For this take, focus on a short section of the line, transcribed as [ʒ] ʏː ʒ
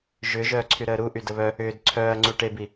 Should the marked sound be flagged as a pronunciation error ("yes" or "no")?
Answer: no